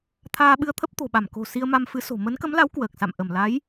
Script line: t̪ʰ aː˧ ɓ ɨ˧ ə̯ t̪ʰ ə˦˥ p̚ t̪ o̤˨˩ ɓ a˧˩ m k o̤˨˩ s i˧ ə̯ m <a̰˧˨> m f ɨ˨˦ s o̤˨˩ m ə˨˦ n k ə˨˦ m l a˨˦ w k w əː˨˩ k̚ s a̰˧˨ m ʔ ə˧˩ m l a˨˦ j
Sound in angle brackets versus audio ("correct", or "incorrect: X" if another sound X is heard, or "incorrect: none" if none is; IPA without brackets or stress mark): incorrect: a˧